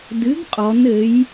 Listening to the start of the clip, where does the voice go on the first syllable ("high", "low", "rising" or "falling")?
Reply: rising